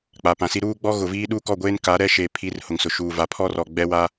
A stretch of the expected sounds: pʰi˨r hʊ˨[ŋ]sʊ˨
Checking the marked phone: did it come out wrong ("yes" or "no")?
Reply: no